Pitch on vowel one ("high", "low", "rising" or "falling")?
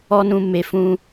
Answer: high